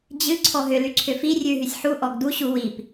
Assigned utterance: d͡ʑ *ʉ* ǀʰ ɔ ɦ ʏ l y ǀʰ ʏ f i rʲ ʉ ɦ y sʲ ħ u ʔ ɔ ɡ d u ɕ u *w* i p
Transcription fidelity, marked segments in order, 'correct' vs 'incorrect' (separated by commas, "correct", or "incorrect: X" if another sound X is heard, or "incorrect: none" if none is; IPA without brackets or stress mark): incorrect: ɨ, correct